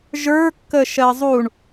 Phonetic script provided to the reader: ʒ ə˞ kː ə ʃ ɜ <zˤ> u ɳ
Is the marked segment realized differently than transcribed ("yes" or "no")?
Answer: no